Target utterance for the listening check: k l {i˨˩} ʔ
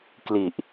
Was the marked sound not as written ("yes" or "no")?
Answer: no